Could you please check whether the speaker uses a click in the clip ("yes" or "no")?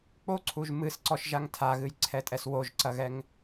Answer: yes